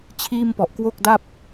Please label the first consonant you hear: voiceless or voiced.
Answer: voiceless